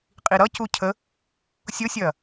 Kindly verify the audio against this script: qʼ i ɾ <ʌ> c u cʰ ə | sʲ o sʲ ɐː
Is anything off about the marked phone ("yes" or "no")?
no